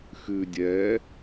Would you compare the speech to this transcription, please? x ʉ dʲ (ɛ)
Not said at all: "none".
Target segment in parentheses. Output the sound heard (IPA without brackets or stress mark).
ɛ